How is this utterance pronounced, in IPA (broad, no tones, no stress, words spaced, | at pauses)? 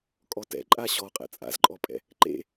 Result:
kʼɔtɛ̰ ǃʼaɕɔ qʼɛ̰t͡sʼa̰zǃʼɔpʼɛ̰ | ǃḛ